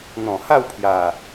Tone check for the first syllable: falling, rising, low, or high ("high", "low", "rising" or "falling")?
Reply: low